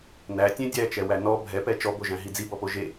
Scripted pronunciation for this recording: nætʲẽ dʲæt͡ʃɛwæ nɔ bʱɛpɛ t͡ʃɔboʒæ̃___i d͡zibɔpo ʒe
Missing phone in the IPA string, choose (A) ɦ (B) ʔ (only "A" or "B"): A